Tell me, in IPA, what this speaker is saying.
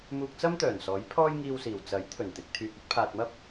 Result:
m uː˧ k̚ t͡s ɐ˥ m t̪ œː˨˩ n s ɔː˨˥ j pʰ ɔː˥ j ŋ iː˧ w s iː˨˩ w t͡s ɐ˨˥ j t̪ʰ ɵ˨˩ n t̪ ɪ˨ k̚ t̪ʰ yː˨ k̚ ɵ˨˥ t̚ pʰ aː˨ t̚ m ɐ˥ p̚

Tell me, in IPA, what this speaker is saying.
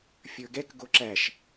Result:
fʲ ə˞ ɡ ɛ k ɡ o ǁ æ ʃ

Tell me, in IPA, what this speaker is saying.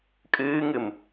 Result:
kʼ ɨː ŋ ɨ m

